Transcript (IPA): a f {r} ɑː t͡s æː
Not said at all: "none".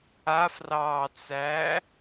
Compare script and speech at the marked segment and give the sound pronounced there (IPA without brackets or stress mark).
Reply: r